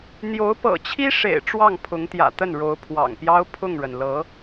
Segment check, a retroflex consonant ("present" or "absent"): present